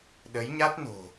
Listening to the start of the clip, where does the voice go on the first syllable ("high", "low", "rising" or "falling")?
rising